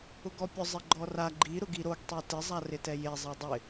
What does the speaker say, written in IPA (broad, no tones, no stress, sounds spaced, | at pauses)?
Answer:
ʊ ɡ ɔ pʲ ʊ zˤ ɪ ɡ͡ǃ ɔ r a ɡ͡ǃ i ɾ ʊ ɡ i ɾ o ɡ tˤ e t ɪ zˤ a r ɪ t ɛ j e zˤ ɛ dˤ ɪ